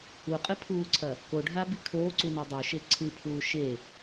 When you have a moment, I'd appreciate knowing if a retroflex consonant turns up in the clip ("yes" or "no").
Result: yes